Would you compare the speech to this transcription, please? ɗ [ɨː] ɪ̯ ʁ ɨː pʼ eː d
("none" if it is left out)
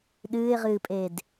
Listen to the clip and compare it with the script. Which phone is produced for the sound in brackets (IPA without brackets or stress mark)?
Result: ɨː